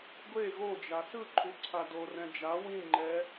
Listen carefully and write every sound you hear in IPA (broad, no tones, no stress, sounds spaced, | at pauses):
ɡʷ e ɣ o d͡ʒ a s ɯ ǃʰ u ǀʰ a d o r ɛ̃ d͡ʒ a w ĩ ŋ͡ǃ ɛ